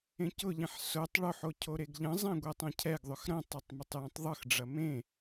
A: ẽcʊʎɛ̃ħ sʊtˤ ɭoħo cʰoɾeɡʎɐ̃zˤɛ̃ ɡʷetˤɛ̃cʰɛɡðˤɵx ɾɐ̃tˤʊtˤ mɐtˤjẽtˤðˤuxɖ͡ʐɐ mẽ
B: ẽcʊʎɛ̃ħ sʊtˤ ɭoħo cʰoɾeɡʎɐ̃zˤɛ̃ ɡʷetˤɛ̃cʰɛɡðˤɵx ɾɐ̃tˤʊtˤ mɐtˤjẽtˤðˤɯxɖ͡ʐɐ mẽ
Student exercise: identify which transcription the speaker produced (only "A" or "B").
B